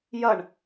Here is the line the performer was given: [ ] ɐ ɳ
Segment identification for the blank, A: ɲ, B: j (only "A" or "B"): B